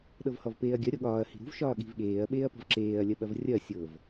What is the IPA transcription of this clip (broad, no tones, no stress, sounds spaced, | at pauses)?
ɗ ɤ v h ɔ v p eː ɐ̯ ɡʲ ɐ ɾʲ ɔ ɠ ɒː ɐ̯ h i̤ ɾ ṳ v ʃ ɒː ɠ i̤ v ɠ eː ɐ̯ ɓ eː ɐ̯ p ɔ̤ v ǁ eː ɐ̯ lʲ ɐ ɓ ɐ v rʲ ɐ sʲ ɤ v